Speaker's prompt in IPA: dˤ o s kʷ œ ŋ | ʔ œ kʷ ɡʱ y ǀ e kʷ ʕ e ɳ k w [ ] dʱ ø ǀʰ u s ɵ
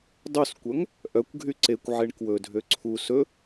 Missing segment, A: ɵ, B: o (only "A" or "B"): A